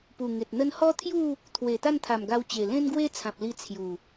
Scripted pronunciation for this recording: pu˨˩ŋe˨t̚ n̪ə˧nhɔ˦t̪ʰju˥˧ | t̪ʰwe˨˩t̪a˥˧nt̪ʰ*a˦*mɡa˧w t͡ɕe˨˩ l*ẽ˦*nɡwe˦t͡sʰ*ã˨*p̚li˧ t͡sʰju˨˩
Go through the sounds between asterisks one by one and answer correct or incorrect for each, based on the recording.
incorrect: a˨˩, correct, correct

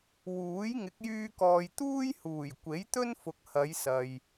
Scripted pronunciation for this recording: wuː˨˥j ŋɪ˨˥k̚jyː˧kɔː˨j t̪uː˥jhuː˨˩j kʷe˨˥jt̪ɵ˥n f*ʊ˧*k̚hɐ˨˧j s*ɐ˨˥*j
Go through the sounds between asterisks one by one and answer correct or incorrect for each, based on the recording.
incorrect: ʊ˨, incorrect: ɐ˨

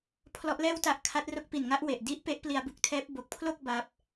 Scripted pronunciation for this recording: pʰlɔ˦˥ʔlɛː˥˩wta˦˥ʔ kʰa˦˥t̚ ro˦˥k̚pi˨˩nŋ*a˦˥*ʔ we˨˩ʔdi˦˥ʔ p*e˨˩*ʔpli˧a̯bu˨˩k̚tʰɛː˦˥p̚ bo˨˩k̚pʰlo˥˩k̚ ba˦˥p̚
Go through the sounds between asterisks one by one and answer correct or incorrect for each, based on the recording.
correct, incorrect: e˦˥

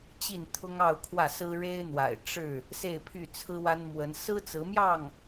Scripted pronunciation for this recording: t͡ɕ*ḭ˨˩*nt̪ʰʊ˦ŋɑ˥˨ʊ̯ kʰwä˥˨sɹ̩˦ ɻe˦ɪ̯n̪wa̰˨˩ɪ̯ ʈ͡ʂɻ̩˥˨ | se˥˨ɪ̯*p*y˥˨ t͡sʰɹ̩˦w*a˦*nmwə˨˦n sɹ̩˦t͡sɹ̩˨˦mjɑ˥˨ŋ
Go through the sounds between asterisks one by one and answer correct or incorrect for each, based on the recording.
incorrect: i˥˨, incorrect: pʰ, correct

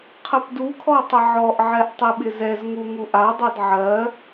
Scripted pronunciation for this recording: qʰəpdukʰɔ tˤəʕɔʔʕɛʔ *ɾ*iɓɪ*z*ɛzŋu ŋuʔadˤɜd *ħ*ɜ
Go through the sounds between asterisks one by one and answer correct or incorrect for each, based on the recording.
incorrect: tˤ, correct, incorrect: ʕ

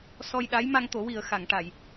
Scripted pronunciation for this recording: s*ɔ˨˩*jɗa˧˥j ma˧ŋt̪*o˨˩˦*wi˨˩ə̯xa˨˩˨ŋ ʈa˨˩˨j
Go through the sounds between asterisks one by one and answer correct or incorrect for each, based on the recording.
incorrect: ɔ˧, correct

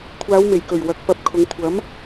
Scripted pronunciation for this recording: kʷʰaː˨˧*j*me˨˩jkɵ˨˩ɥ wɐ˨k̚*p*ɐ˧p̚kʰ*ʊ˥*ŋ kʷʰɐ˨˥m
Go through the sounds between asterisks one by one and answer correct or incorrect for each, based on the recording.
incorrect: w, correct, incorrect: ʊ˨˧

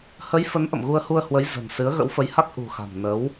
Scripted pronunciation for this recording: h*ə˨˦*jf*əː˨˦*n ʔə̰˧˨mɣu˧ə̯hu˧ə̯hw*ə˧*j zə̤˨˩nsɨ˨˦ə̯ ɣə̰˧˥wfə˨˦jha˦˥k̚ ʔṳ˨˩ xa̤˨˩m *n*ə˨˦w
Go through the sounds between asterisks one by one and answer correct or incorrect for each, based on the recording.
correct, incorrect: ə˨˦, incorrect: ə˨˦, correct

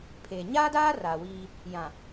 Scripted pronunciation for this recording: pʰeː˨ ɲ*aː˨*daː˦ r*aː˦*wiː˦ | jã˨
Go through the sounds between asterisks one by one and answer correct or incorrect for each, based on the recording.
incorrect: aː˦, incorrect: aː˨

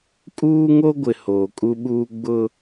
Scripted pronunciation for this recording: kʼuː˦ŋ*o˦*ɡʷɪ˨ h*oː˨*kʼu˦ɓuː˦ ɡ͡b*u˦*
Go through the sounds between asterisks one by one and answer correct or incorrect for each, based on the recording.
correct, correct, incorrect: ʊ˦

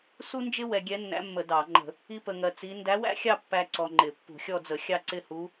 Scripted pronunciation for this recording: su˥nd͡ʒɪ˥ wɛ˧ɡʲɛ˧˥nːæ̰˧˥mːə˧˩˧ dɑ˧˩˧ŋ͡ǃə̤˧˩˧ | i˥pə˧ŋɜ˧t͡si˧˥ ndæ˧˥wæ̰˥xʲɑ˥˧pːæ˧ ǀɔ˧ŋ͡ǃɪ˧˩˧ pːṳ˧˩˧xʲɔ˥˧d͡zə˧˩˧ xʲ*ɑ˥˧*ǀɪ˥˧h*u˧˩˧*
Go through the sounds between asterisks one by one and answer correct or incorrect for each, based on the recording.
correct, incorrect: u˧˥

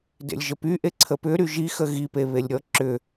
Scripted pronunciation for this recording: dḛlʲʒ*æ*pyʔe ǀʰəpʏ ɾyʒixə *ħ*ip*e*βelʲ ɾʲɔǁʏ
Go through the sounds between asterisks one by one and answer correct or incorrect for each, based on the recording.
incorrect: ə, incorrect: ɣ, correct

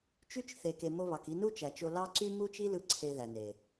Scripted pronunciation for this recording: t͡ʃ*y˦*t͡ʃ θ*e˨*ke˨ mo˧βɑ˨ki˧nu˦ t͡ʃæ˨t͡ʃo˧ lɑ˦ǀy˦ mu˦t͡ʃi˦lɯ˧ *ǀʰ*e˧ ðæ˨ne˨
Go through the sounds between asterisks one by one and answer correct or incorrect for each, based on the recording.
correct, correct, correct

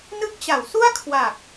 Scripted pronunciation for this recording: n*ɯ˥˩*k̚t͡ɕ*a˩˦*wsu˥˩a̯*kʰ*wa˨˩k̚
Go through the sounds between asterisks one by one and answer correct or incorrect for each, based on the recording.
incorrect: ɯ˦˥, correct, correct

